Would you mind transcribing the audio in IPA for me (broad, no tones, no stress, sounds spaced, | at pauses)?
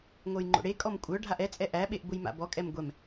ŋʷ ɜ j ŋ͡ǃ o̰ ɽ e kʼ ɔ m kʷʼ œ ɖʱ a ʔ ɛ t͡sʼ ɛ ʔ æ ɓ e ʔ b ʊ j m a̰ b ɔ kʼ ɛ m ɡʷ ɛ m